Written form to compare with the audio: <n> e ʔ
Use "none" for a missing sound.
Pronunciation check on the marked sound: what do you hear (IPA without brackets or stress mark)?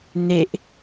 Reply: n